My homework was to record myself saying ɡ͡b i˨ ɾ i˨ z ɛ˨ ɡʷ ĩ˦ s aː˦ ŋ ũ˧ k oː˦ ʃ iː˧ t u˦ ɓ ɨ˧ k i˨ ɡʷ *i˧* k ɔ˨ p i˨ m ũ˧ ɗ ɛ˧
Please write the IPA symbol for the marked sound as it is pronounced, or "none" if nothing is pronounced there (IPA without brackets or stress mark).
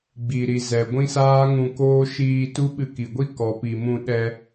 i˦